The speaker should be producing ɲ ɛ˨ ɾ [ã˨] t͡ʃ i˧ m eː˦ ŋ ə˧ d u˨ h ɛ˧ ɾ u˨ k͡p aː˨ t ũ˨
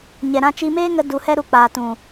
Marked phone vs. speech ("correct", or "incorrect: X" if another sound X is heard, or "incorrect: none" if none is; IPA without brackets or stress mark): incorrect: ã˧